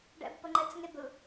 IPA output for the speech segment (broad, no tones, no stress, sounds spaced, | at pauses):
ɖ ɛ̰ b p ə ŋ͡ǃ ɛ t͡s ŋ e d̪ ɯ